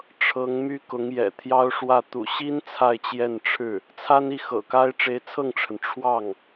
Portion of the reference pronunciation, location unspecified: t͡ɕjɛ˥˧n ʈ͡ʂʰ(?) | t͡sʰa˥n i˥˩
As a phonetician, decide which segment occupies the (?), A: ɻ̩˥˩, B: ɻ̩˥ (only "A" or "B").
A